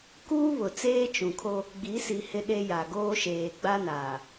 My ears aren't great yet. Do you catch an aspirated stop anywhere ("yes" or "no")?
yes